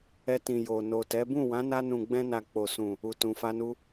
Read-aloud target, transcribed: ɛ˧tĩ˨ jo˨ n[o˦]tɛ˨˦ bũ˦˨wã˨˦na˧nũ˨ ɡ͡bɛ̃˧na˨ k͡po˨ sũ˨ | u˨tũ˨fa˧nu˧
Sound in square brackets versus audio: incorrect: o˨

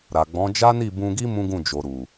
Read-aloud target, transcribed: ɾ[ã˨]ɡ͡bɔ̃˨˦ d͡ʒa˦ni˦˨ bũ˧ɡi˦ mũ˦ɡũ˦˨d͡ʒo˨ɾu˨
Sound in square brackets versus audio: incorrect: a˨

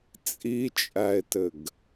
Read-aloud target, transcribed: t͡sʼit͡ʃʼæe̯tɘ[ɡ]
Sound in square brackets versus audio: correct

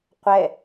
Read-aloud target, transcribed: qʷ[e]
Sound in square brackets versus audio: incorrect: ɛ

